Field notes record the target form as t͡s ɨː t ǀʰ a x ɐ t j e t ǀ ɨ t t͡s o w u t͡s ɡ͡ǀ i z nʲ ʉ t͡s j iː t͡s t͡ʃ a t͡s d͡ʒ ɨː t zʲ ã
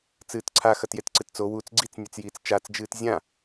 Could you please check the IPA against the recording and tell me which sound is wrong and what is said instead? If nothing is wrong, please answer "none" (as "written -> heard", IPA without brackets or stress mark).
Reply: z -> t͡s